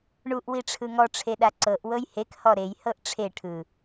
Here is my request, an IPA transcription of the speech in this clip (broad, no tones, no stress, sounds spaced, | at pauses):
ɳ u ʔ w i ʈ͡ʂʰ ɯ ŋ ɔ ʈ͡ʂʰ e ɗ a ǀ ɤ ʔ w ɤ j h e k h ɔ ɾ e j h ɤ ʔ ʈ͡ʂʰ e ʈʰ ɯ